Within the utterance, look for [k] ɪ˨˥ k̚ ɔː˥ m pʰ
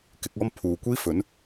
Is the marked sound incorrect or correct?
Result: correct